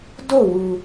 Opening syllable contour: falling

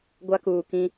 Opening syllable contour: high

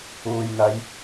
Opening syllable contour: low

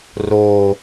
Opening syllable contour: low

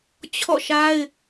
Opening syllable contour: falling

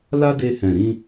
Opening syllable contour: high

